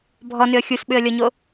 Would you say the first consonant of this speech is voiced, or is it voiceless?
voiced